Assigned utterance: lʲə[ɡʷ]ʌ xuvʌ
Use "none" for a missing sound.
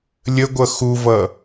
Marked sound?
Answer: ɡʷ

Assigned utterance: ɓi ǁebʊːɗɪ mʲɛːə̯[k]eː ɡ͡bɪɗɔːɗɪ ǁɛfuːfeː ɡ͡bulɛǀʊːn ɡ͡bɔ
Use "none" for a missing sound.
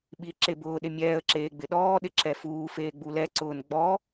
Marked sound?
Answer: ǁ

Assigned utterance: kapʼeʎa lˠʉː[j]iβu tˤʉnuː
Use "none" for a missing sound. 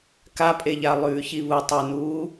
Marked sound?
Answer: ç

